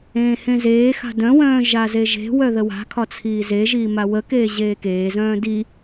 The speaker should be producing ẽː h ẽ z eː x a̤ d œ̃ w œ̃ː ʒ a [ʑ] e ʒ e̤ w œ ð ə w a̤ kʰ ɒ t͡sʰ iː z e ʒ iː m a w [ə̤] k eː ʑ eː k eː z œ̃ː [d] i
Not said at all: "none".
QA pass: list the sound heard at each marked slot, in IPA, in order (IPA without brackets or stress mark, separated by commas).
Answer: z, ə, d